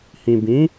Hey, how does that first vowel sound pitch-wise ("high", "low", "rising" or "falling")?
low